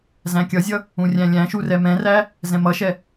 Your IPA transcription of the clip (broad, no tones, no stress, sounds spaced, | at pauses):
z æ̃ kʲ ʌ zʲ ʌ | ũ rʲ æ̃ lʲ æ̃ ʃ u r ɛ m ɛ̃ r æ | z ɛ̃ m ʌ ʃ ɛ